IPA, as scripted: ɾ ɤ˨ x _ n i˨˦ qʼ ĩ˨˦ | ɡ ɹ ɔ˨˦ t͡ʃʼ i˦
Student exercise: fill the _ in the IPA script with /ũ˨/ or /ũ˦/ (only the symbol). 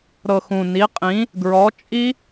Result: ũ˨